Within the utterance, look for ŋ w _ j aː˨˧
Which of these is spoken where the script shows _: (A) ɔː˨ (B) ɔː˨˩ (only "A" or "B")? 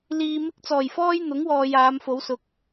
A